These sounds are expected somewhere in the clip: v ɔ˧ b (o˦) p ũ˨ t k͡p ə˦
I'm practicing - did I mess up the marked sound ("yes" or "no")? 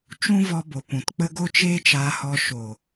yes